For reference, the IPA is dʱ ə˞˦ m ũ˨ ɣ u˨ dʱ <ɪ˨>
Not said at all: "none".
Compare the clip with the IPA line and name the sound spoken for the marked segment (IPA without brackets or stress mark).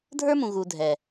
ɛ˨